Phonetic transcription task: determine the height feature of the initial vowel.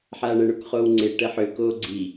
low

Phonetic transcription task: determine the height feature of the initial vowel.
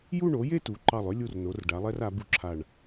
high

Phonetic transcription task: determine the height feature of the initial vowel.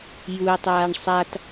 high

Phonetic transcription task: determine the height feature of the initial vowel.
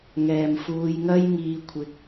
mid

